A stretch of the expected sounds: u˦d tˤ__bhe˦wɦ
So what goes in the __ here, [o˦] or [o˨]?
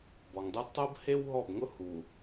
o˦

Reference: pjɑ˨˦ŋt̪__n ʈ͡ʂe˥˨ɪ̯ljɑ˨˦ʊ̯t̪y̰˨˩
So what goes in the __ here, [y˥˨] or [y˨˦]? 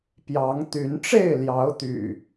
y˨˦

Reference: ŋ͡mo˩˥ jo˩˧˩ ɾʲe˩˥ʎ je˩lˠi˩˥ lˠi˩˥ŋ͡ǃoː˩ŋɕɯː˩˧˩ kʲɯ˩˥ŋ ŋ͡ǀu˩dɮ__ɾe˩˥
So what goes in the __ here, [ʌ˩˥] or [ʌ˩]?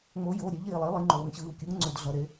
ʌ˩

